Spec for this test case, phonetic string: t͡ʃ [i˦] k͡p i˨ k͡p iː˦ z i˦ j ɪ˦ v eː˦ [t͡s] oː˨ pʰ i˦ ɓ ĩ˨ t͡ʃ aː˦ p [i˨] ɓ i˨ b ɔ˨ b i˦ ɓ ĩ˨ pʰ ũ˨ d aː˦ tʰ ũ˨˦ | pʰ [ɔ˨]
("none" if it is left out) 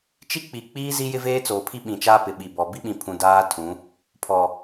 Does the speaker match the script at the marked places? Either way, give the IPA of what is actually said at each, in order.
i˦, t͡s, ɪ˨, ɔ˨

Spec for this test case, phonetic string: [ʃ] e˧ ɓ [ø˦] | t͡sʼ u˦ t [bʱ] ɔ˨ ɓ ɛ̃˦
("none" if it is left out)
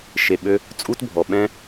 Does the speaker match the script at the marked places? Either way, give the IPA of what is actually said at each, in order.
ʃ, ø˦, bʱ

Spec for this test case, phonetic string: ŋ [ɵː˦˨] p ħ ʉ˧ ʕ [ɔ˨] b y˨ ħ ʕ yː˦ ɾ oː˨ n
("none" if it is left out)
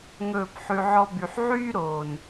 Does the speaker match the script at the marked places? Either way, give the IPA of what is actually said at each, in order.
ɵː˦˨, ɔ˦

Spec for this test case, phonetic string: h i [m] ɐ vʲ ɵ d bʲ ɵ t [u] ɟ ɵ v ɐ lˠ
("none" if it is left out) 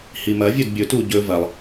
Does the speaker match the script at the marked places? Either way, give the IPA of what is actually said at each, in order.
m, u

